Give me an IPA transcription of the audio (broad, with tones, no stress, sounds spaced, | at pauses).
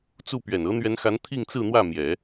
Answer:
t͡s u˥˩ p ɥ ɛ˨˩ n ɤ˧˥ n̪ ɥ ɛ˧˥ n x a˧˥ n t̪ʰ i˥˧ ŋ t͡s ɹ̩˥˧ n̪ w ä˥˩ m j ɛ˨˩˦